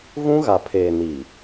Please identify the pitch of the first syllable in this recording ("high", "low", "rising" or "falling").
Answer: high